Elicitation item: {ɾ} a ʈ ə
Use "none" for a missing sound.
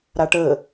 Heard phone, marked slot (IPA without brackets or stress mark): ɾ